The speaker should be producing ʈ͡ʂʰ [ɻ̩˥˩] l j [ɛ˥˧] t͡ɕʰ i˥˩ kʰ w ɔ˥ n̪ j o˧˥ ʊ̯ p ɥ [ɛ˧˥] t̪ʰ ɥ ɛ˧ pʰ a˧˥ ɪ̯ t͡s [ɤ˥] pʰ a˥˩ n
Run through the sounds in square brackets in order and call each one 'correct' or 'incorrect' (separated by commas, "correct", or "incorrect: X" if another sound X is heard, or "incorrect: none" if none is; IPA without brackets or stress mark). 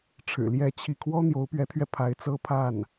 incorrect: ɻ̩˨˩, correct, correct, correct